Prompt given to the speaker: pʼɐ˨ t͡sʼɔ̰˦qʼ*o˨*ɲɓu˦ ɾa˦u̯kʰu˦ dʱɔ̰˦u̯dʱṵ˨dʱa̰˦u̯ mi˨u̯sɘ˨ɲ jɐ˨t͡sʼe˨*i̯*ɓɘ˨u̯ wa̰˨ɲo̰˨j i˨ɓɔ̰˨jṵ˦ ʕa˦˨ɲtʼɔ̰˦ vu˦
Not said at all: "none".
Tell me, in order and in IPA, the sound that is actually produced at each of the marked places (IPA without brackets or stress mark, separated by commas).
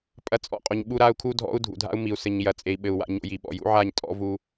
o˨, i̯